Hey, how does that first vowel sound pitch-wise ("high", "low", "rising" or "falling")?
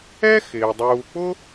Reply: high